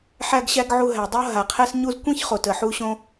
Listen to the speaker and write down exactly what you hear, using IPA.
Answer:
ħæ˦ɡɕæ˦ɡʕu˧ ɦæ˨dˤo˦ ɦa˨qʰɛ˦sɲu˦z kʷẽ˦ç χo˨tə˨ħu˦ɕõ˦

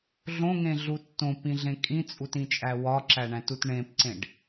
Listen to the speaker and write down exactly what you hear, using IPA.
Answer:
ɮõŋẽ ɮutːõpĩɮẽ kʼĩt͡sʼutĩt͡ʃʼæ wɒǁæɳæ̃tut ɳẽpǀẽɖ

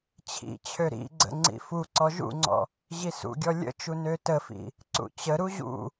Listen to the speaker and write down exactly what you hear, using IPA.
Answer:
t͡ɕʰḭt͡ɕʰø ɾḭɡ͡ǀə̰ ŋ͡ǀḭfuǀɔ ʒṵŋ͡ǀɔ̰ | ʑisṵɡʲɔ lʲə̰t͡ʃu nøtəfḭ | ǀṵt͡ɕəɾu ʑṵ

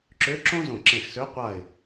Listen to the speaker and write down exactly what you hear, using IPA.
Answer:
ǁø˧˥ ǁõ˥ zõ˧˩ǁẽ˧˩xsø˧˥ qʷa˧˩ɪ̯

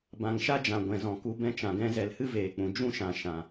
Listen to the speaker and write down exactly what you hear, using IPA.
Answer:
bã˨ŋʃa˦d͡ʒã˨ ɡʷɛ̃˨zɔ̃˨ku˧ bɛ̃˧t͡ʃã˨ɡɛ̃˧ zɛ˨lhɨ˦veː˨k͡pũ˨ d͡ʒũ˦ʃã˨ ʃã˨

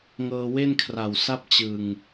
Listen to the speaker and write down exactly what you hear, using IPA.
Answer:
ŋɤː˧we˥˩nkʰra˨˩w sa˥˩p̚t͡ɕɯ˨˩ŋ

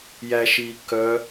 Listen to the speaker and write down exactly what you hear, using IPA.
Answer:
jæʃiː kœ

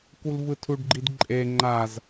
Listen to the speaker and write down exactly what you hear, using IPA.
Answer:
kulvɯtʰuɖɡ͡ǃid ǃʼe ŋ͡ǃaz

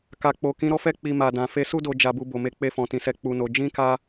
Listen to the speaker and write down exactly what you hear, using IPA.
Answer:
ka˨k͡po˨kĩ˨˦ ɾɔ˦fɛ˦ k͡pi˧ma˨dã˨ fe˧su˦do˧ d͡ʒa˧bu˧ bo˨me˧ k͡pe˧fɔ̃˨tĩ˨sɛ˨˦ k͡pu˧no˧ d͡ʒĩ˦ka˦

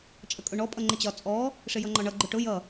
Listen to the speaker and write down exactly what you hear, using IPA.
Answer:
t͡ʃʼəkʼʊɳɔ pʼʌŋ͡ǃɪt͡ɕɒ t͡sʼɔ | ʂɪjʌŋ͡ǃɒɳʌ ɡ͡ǃʊʈʊ jʌ

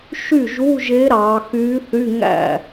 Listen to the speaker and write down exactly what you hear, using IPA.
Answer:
ʃy˥˩ʒu˧˥˧ʒe˧˥ ɾɑ˩˧ xy˧˥θy˧˥˧ŋæ̰˥˩

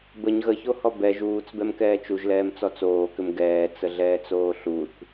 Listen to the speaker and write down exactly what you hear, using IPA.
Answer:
bəɲ ɣəçohɔ bɛ ʒuːt͡sbɛm kɛːt͡ʃuʒlɛːmt͡sɔ t͡soːkʏm ɡɛːt͡səɮɛːt͡soː ɬuθ

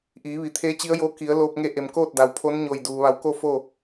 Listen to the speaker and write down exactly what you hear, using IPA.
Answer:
ʔiː˩˧ʋi˩˧ t̪ʰeː˧˥t͡ɕi˧˥ə̯joː˧˥ ki˩˧ə̯loː˧p̚ ŋe˧˥ʔe˩m koː˥˨t̚da˩wpʰo˧˥n ɲo˧˩jduː˩ ʋa˧˩wko˥˨foː˥˨

